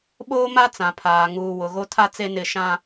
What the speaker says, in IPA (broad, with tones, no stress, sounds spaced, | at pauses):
ɓ oː˦ m a˦ t͡s ã˨ pʰ aː˨ ŋ uː˨ w ʊ˨ ɣ o˦ tʰ a˦ t͡s e˦ n ɪ˦˨ ʃ ã˦